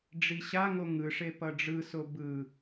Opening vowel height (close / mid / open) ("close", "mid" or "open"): close